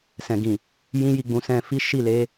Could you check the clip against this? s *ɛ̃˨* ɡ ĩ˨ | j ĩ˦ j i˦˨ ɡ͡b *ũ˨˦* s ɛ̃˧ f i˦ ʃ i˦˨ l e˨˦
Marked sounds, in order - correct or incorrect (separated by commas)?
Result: correct, correct